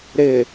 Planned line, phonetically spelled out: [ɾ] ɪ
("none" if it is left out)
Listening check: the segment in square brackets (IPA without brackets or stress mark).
ɾ